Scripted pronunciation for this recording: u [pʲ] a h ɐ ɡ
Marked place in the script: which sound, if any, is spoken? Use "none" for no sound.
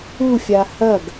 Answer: fʲ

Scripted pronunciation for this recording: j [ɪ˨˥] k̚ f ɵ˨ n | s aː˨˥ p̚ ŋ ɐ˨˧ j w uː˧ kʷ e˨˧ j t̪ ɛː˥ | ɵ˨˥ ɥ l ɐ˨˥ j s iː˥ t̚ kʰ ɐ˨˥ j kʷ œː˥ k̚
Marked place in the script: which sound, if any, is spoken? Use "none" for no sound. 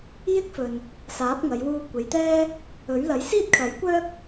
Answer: ɪ˥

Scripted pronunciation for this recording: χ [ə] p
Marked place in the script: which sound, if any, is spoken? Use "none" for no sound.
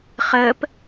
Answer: əː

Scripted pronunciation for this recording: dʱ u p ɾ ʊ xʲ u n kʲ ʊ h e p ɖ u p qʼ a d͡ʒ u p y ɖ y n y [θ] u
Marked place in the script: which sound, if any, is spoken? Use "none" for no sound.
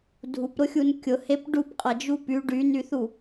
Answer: θ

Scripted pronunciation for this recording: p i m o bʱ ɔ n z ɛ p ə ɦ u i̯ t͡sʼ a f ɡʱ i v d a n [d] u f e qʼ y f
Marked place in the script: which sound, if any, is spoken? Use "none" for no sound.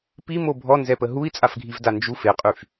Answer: d͡ʒ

